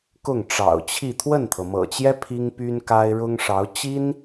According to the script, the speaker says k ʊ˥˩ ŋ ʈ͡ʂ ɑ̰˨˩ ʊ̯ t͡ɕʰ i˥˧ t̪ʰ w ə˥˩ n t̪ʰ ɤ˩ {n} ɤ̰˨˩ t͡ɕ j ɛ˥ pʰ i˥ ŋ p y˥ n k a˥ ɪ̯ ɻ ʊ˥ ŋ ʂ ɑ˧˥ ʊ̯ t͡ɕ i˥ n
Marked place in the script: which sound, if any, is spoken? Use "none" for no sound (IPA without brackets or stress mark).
m